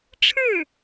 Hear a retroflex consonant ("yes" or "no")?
yes